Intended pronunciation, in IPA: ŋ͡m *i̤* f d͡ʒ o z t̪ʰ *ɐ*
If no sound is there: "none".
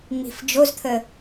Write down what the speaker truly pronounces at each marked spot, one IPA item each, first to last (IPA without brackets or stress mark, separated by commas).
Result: i̤, ə